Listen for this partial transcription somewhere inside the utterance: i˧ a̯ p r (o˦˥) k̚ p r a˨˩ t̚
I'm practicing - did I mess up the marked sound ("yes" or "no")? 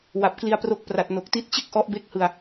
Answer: no